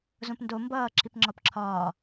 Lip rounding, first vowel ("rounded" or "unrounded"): rounded